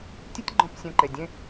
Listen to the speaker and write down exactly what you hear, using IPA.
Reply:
tʲ ɨ˦ tʲ ɡ͡ǃ ɔ̃˧ p sʲ ɛ̃˨ ǃ e˨ dʲ ẽ˦

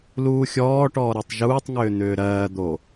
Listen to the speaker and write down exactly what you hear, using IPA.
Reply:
l uː xʲ ɔː ʈ ɔː ɾ ɜ tˤ ʒ uː tˤ ŋ ʏː n̪ ʏː ɾ ɜː d̪ o

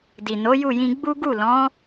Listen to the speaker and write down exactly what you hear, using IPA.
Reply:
d i˨ n o˨˦ j u˦˨ j ĩ˧ ɡ͡b u˦ ɡ u˦˨ l ɔ̃˨˦

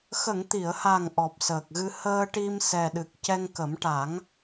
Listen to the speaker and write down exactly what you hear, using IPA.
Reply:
x ə˨˩˨ ŋ t̪ i˨˩˨ ə̯ h a˨˩ ŋ ʔ ɔ˨˩ p̚ s əː˨˩ k̚ ɣ ɨ˧ h əː˧ ʈ i˧ m s ɛ˨˩ ɗ ɨ˨˩ k̚ c ɛ˧ ŋ k ə˨˩˦ m ʈ a˨˩˦ ŋ

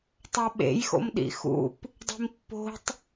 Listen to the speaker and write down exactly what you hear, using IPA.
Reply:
tˤ o ɓ ḛ j x o̰ m ɗ ḭ x ṵ p | dˤ i̤ m pː o̤ tˤ

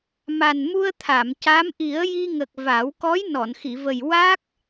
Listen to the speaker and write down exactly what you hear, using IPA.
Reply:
m a˨˩ n m u˧ ə̯ t̪ʰ a˨˩˨ m c a˧˥ m ʔ i˨˩˦ ə̯ j i˧ ŋ ə˨˩ k̚ v a˨˩˦ w k ɔ˧˥ j n ɔ˨˩˨ n x i˨˩˨ v ə˨˩ j w a˦˥ k̚

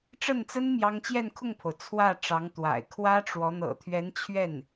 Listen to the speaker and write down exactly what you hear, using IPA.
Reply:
ʈ͡ʂ ə˥˩ n t͡s ə˥ n m j ɑ˥ ŋ t͡ɕ j ɛ˥˧ n kʰ ʊ˥˩ ŋ pʰ o˩ ʊ̯ t͡sʰ w ä˥˩ ʈ͡ʂ ɑ˧˥ ŋ t̪ w a̰˨˩ ɪ̯ kʰ w ä˥ ʈ͡ʂ w ɔ˧˥ n̪ ɤ̰˨˩ t̪ʰ ɥ ɛ˧˥ n t͡ɕʰ ɥ ɛ˥˩ n

